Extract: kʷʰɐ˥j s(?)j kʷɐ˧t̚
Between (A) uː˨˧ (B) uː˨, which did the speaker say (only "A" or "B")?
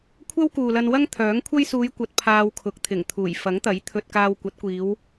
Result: A